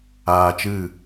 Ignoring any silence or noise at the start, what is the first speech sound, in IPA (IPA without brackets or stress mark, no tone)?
aː